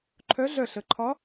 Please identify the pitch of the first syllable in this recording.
rising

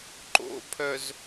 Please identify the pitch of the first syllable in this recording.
low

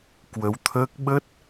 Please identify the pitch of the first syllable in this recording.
rising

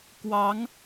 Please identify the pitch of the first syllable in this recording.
rising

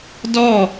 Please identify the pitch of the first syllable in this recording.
falling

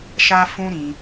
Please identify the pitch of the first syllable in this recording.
high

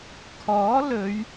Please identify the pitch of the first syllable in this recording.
rising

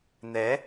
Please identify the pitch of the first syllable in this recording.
rising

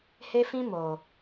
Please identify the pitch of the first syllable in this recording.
high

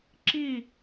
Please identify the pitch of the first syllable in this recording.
falling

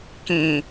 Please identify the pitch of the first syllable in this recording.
low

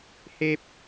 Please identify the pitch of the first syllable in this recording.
high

